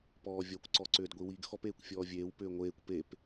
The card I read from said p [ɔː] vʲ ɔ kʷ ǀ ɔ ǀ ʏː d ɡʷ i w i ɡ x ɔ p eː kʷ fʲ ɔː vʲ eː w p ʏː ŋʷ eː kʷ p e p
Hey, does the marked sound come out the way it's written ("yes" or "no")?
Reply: yes